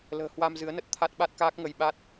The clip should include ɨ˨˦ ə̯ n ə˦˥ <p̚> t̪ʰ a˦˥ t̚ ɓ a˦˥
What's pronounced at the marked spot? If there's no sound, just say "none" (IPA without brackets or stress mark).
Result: t̚